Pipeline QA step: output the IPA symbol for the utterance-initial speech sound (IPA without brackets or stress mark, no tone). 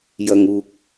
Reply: j